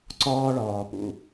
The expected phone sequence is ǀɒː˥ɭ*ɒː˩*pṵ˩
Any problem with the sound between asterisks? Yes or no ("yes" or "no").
no